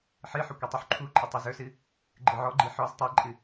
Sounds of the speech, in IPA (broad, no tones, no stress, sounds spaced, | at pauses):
ħ ɨ ħ ɵ kʷ ɨ tˤ u ħ ǃʰ u ǃʼ ɨ tˤ ɨ z ɵ s ɨ | ɡ͡ǃ ɯ ʕ ɔ ɡ͡ǃ i ħ ɔ z tˤ i ǃʼ ɨ